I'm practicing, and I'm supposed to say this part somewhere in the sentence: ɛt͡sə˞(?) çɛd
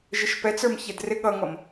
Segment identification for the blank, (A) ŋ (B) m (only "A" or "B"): B